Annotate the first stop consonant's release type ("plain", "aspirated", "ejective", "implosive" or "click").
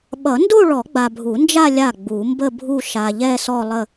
implosive